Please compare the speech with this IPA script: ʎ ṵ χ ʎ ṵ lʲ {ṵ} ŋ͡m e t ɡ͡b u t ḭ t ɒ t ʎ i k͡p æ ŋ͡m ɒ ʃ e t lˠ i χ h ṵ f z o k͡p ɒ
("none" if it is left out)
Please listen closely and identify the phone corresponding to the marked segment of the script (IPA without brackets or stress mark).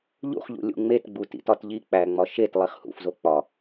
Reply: ṵ